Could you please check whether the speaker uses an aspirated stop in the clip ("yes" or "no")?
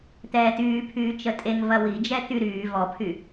yes